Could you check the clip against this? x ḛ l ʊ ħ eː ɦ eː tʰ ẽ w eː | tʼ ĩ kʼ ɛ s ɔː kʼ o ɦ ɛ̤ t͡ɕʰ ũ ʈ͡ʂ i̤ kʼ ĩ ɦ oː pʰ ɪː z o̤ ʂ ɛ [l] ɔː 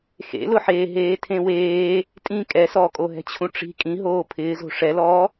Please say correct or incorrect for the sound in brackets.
correct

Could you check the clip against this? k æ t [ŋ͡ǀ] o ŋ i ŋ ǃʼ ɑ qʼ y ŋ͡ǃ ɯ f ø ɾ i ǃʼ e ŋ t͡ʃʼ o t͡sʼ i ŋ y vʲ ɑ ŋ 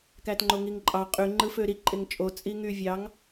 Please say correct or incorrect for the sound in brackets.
incorrect: ŋ͡ǃ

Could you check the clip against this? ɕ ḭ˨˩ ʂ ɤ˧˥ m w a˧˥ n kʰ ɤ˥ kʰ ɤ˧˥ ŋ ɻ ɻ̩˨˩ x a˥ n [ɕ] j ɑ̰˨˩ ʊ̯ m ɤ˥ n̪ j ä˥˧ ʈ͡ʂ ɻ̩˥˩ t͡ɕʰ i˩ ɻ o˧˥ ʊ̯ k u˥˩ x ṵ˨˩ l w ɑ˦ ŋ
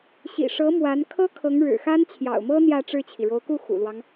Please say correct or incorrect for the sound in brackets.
incorrect: t͡ɕʰ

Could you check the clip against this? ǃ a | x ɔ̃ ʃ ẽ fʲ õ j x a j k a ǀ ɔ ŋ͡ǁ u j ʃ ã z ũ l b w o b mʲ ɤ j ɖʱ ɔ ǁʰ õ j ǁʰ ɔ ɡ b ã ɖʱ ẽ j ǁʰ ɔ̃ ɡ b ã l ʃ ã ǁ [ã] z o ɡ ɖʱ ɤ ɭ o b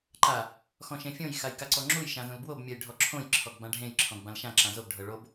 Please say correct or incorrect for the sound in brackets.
correct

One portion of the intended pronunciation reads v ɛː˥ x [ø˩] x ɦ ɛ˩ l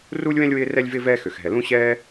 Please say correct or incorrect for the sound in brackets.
correct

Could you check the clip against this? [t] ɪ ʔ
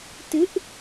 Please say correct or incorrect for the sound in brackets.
correct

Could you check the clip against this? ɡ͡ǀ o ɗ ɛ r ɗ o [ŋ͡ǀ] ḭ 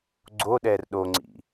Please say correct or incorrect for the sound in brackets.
correct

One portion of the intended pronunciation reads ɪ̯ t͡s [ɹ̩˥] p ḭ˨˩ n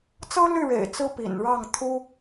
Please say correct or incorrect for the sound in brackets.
correct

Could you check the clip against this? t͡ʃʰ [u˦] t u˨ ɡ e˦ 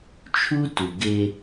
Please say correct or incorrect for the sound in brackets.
correct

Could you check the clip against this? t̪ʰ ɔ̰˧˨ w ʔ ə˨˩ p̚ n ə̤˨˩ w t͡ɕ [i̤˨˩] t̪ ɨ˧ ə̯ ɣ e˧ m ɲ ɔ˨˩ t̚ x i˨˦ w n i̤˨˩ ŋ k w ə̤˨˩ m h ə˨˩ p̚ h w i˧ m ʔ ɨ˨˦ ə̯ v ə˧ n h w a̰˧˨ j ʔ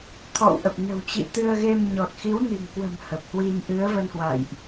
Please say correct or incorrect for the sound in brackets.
incorrect: ḭ˧˨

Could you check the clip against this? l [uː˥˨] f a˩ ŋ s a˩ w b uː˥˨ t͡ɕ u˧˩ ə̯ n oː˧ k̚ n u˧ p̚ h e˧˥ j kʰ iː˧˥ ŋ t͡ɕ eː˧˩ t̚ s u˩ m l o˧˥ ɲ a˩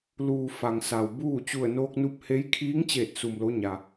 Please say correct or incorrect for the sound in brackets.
incorrect: uː˩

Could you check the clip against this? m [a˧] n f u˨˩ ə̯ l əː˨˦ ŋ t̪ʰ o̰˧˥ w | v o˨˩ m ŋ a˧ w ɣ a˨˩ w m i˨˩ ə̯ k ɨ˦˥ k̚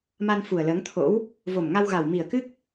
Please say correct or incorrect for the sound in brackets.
correct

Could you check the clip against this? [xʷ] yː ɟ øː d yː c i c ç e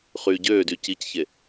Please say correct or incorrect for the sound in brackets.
incorrect: χ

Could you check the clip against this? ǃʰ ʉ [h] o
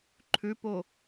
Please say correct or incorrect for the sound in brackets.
incorrect: p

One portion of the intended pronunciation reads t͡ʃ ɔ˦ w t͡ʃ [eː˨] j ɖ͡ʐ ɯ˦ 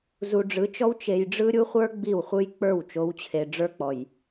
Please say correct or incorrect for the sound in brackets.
incorrect: e˨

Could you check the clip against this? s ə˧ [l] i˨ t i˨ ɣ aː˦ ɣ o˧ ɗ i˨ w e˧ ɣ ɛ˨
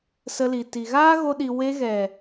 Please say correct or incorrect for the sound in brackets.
correct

